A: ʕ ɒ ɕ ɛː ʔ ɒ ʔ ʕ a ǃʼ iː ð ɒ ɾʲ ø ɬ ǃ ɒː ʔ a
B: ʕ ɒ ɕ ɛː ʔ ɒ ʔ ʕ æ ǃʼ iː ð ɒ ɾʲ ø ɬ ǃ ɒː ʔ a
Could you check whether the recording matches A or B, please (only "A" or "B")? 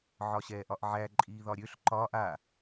B